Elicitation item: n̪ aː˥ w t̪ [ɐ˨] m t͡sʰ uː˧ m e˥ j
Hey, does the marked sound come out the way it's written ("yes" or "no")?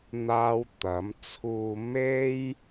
no